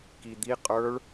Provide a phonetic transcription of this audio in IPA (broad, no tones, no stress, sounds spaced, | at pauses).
k i d̪ i qʼ ə˞ ɭ